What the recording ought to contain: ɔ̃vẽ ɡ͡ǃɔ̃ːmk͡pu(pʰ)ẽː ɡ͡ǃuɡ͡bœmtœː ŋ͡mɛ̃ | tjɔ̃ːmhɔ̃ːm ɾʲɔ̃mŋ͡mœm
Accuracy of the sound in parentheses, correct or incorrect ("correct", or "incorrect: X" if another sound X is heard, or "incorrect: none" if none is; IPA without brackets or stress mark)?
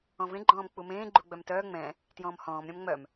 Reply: incorrect: m